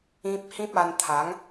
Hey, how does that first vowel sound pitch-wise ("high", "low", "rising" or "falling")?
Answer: high